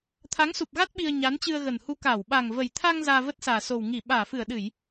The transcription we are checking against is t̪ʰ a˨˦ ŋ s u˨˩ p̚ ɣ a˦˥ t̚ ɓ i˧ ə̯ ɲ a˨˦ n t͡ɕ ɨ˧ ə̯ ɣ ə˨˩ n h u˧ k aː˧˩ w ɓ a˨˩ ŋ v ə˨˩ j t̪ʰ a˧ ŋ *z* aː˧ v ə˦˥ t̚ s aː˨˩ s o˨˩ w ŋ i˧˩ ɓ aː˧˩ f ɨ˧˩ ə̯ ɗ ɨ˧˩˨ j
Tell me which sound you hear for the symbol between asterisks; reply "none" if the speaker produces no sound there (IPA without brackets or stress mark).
z